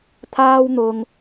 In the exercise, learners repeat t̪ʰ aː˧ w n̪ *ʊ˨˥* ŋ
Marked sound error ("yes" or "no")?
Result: yes